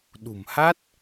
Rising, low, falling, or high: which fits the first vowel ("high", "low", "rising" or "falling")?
low